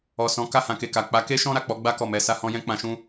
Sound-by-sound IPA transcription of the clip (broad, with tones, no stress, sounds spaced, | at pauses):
ɔ˨ s ɔ̃˨˦ k a˦˨ h ã˧ k e˨ k a˨ k͡p a˨˦ k e˦ ʃ ɔ̃˦ ɾ a˦˨ k͡p ɔ˨˦ ɡ͡b a˦ k ɔ˦˨ m ɛ˧ s a˦ h ɔ̃˦ j ɛ̃˦ k͡p ã˧ ʃ ũ˦